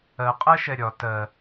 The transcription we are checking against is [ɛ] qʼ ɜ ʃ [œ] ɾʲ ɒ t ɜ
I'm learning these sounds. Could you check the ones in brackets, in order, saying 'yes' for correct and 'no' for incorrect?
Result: no, no

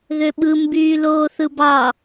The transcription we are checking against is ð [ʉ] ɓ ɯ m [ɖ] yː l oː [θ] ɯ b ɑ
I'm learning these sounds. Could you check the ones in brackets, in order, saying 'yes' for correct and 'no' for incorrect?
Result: no, no, yes

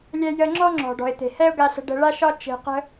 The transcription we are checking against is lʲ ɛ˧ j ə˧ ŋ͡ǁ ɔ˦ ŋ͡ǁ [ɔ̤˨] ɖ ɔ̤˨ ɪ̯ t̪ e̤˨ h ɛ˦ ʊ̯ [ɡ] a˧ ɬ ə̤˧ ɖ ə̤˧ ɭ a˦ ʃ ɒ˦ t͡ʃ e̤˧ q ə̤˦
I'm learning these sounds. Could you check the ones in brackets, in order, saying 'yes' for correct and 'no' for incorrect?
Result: yes, yes

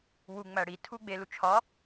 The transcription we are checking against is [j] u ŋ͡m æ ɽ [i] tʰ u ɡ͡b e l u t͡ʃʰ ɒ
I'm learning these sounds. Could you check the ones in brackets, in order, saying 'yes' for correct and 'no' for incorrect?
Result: no, yes

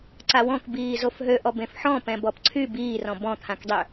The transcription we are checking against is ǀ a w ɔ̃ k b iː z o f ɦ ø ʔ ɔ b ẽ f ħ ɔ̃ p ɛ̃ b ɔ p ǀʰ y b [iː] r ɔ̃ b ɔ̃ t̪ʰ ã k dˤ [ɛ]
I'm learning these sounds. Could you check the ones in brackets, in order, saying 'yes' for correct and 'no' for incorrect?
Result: yes, no

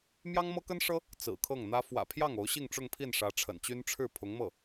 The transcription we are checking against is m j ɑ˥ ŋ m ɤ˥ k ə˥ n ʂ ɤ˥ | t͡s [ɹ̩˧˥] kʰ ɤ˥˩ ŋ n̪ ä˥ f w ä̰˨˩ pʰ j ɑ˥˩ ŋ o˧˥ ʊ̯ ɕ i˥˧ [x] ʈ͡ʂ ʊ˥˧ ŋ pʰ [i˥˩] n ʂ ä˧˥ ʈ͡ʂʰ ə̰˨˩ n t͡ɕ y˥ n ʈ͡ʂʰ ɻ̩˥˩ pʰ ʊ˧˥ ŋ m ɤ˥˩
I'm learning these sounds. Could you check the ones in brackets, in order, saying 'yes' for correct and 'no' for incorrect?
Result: no, no, yes

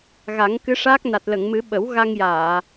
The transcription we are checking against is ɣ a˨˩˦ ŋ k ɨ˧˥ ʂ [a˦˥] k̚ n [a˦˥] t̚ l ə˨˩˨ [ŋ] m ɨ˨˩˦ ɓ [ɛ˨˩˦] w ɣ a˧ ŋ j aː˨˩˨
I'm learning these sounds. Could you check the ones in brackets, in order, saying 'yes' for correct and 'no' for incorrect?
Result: no, no, yes, no

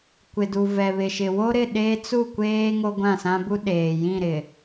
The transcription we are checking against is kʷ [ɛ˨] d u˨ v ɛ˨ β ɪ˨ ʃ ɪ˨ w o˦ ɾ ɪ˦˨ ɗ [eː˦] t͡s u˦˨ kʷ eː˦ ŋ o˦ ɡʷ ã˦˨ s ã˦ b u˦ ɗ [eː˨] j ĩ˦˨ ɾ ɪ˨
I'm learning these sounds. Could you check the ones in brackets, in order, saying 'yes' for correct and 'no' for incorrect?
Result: no, yes, yes

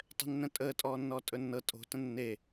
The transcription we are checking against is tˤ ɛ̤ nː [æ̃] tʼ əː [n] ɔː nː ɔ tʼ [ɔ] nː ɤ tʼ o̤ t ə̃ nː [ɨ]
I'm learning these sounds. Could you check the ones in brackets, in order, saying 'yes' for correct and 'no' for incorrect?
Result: no, no, no, no

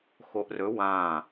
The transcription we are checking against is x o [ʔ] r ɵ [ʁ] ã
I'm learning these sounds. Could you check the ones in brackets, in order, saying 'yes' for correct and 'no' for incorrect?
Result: yes, no

